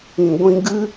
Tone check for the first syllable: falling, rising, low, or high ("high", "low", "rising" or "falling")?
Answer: low